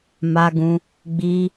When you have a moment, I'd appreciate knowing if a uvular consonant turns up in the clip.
no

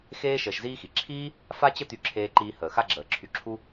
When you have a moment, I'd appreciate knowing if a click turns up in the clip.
yes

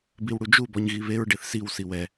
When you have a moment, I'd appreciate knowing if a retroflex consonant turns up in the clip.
yes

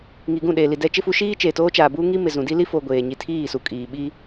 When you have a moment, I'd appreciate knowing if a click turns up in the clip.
no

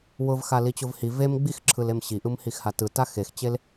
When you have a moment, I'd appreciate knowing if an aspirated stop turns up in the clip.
yes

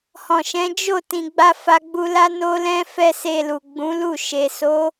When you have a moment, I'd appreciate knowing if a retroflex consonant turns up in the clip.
no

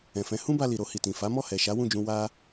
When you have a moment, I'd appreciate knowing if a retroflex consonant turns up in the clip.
no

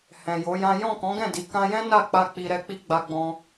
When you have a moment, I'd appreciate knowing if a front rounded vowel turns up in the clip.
no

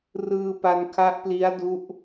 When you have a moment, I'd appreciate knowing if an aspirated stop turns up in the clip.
yes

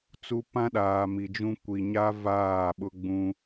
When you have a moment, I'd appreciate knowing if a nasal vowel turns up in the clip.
yes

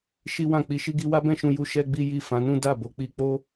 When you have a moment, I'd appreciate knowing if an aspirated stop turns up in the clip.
no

